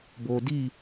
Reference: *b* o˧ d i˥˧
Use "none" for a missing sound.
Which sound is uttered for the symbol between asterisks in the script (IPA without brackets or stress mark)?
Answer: b